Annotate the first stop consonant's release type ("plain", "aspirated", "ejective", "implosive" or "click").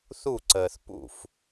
click